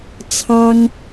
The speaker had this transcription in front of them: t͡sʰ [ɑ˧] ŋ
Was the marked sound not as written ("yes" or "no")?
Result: yes